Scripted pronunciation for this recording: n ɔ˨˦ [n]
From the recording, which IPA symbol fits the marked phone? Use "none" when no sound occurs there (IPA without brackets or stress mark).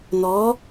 none